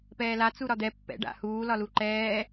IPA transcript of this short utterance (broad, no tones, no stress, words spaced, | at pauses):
pɛːla t͡suɾɒd̪ɛ pːɛ̰ ɖa̰huː lɒluǃɛː